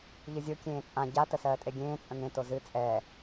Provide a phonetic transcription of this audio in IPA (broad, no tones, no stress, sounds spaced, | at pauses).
ʎ ɨ zʲ o kʲ ẽː t͡sʼ ã ɟ a t ə s ɜː tʼ e ɡʲ ẽː t͡sʼ ə̃ ŋ ẽ t o z ɨ t͡sʼ ɛː